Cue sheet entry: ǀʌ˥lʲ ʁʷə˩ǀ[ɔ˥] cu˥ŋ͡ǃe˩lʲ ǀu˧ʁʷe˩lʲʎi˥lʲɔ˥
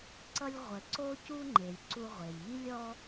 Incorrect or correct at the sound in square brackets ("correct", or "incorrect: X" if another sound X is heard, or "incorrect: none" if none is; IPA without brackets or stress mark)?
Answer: incorrect: o˥